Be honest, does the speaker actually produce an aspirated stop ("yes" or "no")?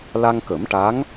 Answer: no